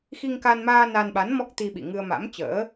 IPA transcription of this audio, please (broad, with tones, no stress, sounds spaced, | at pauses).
x i˧ ŋ k a˧ n m aː˧ n a˧ n ɓ a˨˦ n m ɔ˦˥ k̚ t̪ i˧ ɓ ḭ˧˨ ŋ ɨ˧ ə̯ m a̰˧˥ m t͡ɕ ə̰ː˧˥